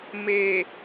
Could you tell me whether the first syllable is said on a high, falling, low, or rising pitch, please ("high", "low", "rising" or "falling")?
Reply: low